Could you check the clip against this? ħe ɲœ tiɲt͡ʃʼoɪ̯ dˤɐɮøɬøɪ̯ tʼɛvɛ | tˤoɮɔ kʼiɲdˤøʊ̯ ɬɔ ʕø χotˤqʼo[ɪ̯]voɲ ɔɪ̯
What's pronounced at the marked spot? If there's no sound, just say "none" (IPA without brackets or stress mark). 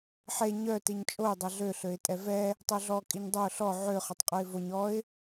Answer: ɪ̯